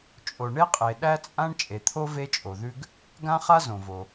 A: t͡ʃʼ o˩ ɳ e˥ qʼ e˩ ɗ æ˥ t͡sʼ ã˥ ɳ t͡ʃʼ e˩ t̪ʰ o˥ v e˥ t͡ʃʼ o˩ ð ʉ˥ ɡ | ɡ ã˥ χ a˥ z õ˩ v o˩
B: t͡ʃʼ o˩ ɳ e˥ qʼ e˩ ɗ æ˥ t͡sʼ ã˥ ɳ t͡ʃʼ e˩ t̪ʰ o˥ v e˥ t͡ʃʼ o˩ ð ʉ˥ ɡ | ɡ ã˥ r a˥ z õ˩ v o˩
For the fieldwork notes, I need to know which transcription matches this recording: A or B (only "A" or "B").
A